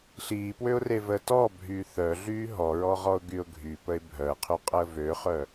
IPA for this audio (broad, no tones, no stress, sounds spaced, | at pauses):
ɬ iː p w ø ʊ̯ r e v əː t ɔ bʱ yː θ œ ɮ yː ɦ ɔ ɹ ɔ ʁ ɔ ʊ̯ ɡ y ʊ̯ ɡʱ y p ə ɪ̯ bʱ œ ə̯ qʰ y qʼ əː v ø χ œ